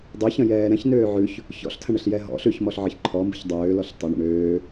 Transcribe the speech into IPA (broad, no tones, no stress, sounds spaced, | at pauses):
dˤ ø ç ə̃ j ɛː ɾ ɛ̃ ç n øː ʕ ʉ ç | ç ɔ̰ ɬ tʰ ə̃ ɳ ə ɬ j ɛ ɦ ɔ̰ ɬ ʉ ç m ɔ ɬ ʕ ə ç ǃʰ ɔ m b ə̤ ç dˤ øː l ɔ ɬ tˤ ɘ ɳ ə̰ ɳ øː